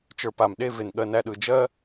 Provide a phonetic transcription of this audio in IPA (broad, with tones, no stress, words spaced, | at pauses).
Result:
t͡ʃə˞˧pa˨m ɗe˦˨ ve˨nɠɜ˧næ˧ɗɯ˨ d͡ʒɜ˦